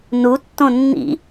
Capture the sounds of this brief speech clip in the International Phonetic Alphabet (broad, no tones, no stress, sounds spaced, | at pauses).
n u tː õ nː ḭ